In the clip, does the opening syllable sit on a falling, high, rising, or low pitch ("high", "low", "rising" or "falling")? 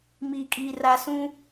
low